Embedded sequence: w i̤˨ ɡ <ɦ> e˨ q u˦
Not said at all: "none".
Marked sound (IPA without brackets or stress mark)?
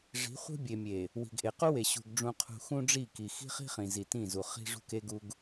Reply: ʔ